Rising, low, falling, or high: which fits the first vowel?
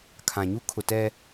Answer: low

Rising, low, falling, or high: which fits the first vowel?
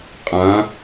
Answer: rising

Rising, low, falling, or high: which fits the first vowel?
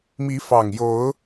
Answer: rising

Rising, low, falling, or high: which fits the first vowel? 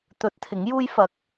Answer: rising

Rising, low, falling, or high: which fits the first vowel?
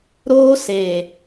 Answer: high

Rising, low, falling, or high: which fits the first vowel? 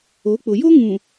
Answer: rising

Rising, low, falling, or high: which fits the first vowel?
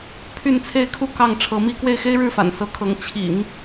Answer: falling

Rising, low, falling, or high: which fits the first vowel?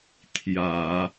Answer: low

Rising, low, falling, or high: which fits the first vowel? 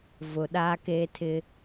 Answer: low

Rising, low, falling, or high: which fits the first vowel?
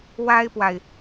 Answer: high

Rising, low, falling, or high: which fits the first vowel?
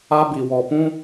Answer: high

